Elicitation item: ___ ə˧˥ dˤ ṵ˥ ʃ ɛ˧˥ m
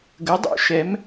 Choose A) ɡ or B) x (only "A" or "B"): A